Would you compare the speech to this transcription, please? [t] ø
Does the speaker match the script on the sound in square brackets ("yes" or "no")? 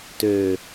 yes